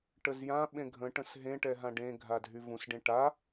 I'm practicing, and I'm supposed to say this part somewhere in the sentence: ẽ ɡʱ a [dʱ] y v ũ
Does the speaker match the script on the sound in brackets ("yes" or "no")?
yes